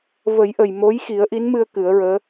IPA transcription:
v ə˨˩˦ j ʔ ə˨˩ j m o˧˥ j x i˨˩˦ ə̯ ʔ i˧˥ n m ɨ˧ ə̯ k ɨ˨˩˦ ə̯ ɹ əː˧˥

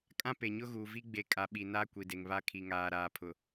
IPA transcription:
kʼ ã˦ p e˨ ɲ ʊ˦ ɣ uː˨ v i˦ ɡ͡b e˨ kʼ a˨ ɓ i˨ n a˦ kʷ i˨ d e˨ ŋ β a˦ kʰ i˨ ŋ aː˨ ɾ aː˨ pʰ ʊ˨

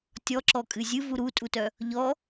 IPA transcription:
tʲ ɔ ǁ ɔ kʼ ɨ zʲ ɨ v u ɾ u tʼ u t œ | ʎ ɔ

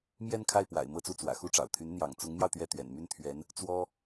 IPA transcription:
m j ɛ˥˧ n kʰ a˥˩ ɪ̯ p w a̰˨˩ ɪ̯ m ɤ˥˧ t͡s u˥˩ t͡s w ä̰˨˩ x u˥ ʈ͡ʂ ɑ̰˨˩ ʊ̯ t̪ʰ y˧˥ n n̪ j ɑ̰˨˩ ŋ t͡s ʊ˧˥ ŋ m j ɑ˧ ʊ̯ t̪ ɥ ɛ˥˩ t̪ ɥ ɛ̰˨˩ n m y˥˩ n t̪ʰ ɥ ɛ˧˥ n | t͡s w ɔ˥

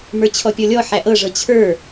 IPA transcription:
m ə˞ t͡ɕʰ ɔ pʲ ɔ lʲ ɔ ħ æ ʔ ɤ ʐ ɤ t͡ɕʰ ə˞

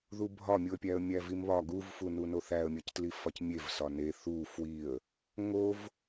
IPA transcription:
ð u bʱ ɒ mʲ u ə̯ pʲ æ ə̯ mʲ æ v i m β ɒ ɡ u v f u n u n o θ æ ə̯ mʲ ɒ c t l i f ɒ c mʲ e v s ɒ n e θ u f w i ə̯ | ŋ o v

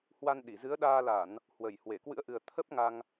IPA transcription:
h w a˧ n ɗ i˧˩ z ɨ˨˦ ə̯ ɗ aː˧ l a˧˩˨ n | h w ə˧˩ j h w e˧˩ k w ɨ̰˧˥ ə̯ ʔ ɨ˨˩ ə̯ t̪ʰ ə˦˥ p̚ ŋ a˧ ŋ

